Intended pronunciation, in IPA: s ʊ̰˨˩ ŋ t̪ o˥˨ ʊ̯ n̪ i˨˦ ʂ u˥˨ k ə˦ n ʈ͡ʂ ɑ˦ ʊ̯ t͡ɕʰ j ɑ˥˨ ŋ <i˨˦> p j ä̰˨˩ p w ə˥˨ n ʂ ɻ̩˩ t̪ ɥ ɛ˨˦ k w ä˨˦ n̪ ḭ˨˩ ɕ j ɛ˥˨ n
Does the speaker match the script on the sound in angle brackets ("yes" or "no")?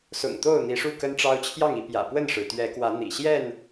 yes